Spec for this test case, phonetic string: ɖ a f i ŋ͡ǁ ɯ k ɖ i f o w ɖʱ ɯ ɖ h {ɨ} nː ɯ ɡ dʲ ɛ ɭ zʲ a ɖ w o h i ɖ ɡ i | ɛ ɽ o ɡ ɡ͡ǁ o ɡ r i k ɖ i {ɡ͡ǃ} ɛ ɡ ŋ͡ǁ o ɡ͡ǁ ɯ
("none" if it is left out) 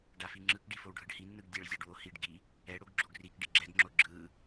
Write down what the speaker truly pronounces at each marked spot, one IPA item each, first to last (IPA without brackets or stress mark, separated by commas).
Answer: i, ɡ͡ǁ